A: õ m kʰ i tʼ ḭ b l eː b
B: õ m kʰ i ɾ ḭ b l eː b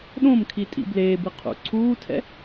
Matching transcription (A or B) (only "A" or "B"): A